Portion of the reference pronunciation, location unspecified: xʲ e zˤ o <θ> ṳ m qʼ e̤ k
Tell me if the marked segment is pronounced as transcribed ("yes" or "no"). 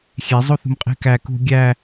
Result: yes